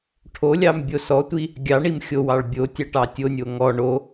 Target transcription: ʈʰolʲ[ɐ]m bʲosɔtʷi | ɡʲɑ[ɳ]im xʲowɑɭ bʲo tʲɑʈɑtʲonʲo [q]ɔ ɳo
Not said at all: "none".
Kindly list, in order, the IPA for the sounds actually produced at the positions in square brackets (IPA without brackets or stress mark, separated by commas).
ɑ, ɳ, ŋ